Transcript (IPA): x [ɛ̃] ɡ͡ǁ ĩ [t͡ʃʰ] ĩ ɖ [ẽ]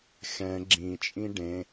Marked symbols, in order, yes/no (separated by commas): yes, no, yes